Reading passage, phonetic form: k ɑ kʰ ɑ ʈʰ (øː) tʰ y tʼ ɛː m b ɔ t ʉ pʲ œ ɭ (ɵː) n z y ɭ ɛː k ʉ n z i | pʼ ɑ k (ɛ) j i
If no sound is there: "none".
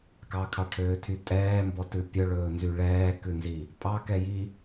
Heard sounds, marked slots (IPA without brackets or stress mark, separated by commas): øː, ɵː, ɛ